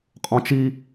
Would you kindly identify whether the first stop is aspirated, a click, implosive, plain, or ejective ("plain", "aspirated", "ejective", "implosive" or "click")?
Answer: ejective